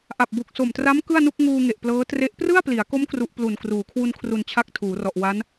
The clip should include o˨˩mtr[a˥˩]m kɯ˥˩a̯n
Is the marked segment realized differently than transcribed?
yes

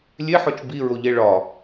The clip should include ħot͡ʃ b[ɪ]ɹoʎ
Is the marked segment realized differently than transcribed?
yes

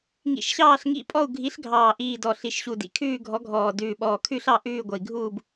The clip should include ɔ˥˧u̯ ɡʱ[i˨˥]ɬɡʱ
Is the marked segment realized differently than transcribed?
no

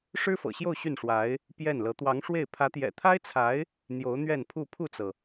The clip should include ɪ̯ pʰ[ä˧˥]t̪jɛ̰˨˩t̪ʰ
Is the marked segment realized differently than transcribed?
no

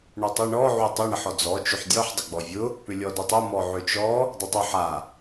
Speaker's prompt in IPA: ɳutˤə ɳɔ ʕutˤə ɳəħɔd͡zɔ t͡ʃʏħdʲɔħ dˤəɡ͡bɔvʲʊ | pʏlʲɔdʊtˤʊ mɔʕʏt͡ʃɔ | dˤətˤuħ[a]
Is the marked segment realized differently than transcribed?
no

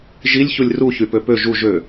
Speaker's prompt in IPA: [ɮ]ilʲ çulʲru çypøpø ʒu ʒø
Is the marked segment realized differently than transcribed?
yes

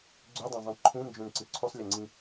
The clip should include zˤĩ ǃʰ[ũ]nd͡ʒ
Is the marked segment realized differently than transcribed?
no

